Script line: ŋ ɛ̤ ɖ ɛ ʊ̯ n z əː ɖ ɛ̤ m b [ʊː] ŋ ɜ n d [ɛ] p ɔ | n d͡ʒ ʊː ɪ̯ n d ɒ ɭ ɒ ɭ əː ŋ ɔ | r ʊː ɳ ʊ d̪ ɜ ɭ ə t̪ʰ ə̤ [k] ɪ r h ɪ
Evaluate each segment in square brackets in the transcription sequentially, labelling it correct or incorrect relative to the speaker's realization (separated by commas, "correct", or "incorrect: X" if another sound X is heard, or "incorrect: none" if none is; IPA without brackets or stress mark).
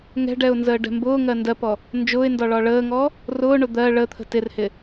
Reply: correct, incorrect: ɜ, incorrect: t